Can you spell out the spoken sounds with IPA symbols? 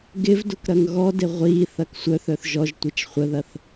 ɡ ɪ v d ʊ k ɾ ɐ ŋ ɣ ɔ d ɪ ʁʷ i θ ɐ k sʷ œ θ œ θ ʒ ɔ ʒ tʷ i t͡ʃ χʷ ə ð ɐ θ

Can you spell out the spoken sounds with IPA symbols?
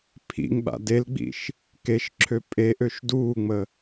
pʰ ḭ ŋ ɓ a̰ d e l ɡ͡b ḭ ʃ | k e ʃ ǁʰ ø pʼ e ʔ ø ʃ d uː ŋ͡m ə

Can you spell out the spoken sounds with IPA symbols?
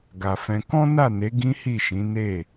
ɡ a˨ f ɛ̃˧ k ɔ̃˦ n a˦˨ n e˨˦ ɡ ĩ˦ h i˦˨ ʃ ĩ˨˦ n e˦˨

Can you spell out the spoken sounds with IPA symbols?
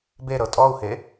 b e ɾ ɤ tʼ ɔ u̯ h e

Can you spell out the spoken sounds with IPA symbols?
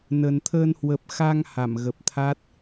n ə˨˩ n t̪ʰ əː˧ n h w ə˨˩ p̚ x a˧ ŋ h a˧˩ m ɣ ə˨˩ p̚ t̪ʰ a˦˥ t̚

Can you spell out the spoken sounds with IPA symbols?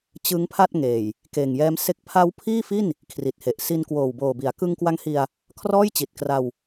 t͡ɕ ɯ˦˥ ŋ pʰ a˥˩ t̚ ŋ eː˨˩ j | k eː˨˩ ŋ j ɛː˦˥ m s e˥˩ k̚ pʰ a˦˥ w pʰ iː˥˩ f i˥˩ n | kʰ r i˨˩ t̚ h e˨˩ ʔ s i˧ n k w oː˨˩ w b oː˨˩ b i˩˦ a̯ k ɯ˧ ŋ k w a˧ ŋ h i˧ a̯ | kʰ r ɔː˥˩ j t͡ɕ i˨˩ t̚ k r a˧ w

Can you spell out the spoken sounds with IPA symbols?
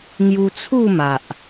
ŋ j u˧ t͡sʰ u˥˧ m a˨ ʔ

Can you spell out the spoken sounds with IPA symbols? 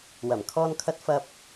w ɐ˨˩ m kʰ ɔː˧ n kʰ ɐ˧ t̚ f ɐ˧ p̚

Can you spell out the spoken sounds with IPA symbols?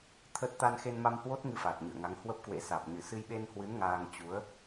t̪ʰ ə˦˥ t̚ t̪ a˧ n x e˧ n m a˧ m h w o˦˥ t̚ ŋ ɨ˧ f aː˨˩ t̚ ɲ ɨ̰˧˨ ə̯ ŋ a˨˦ ŋ h w ə˦˥ p̚ k w ḛ˧˥ s aː˨˩ p̚ ɲ ɨ˧˩ s ɨ˧ j ɓ e˧ n h w ɨ˨˦ n ŋ aː˧ ŋ t͡ɕ u˨˦ ə̯

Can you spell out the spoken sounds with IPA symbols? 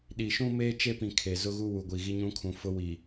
ɗ i˨ ʃ ũ˦ m eː˦ t͡ʃ e˦ p ĩ˨ kʰ e˨ z ʊ˦ ɣ u˦ w u˨ ɡʷ i˨ ɣ i˦ ɲ ũ˦ kʰ ũ˨ f ʊ˦ w i˨

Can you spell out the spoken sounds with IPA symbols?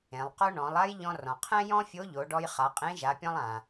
ẽ˩˧ lˠ q o˥ ɳ ɔ̃˩˧ lˠ a˥ j ʎ ɔ̃˧ r ɔ̃˩ qʰ ɛ̃˥ j ɔ̃˥ fʲ o˧˥ ʎ o˩˧ ɖ ɔ˧ j χ a˩˧ qʼ ẽ˧˥ ʒ a˩˧ pʲ ɔ̃˥ lˠ ã˩

